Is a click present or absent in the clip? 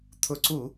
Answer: present